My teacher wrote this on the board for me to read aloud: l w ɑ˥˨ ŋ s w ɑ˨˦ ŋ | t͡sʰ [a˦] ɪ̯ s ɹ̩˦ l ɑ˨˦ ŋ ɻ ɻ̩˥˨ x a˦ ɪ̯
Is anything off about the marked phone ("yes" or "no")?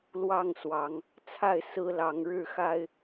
yes